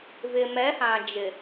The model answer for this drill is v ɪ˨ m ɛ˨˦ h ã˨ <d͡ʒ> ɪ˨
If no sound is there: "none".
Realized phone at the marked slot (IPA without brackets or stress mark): d͡ʒ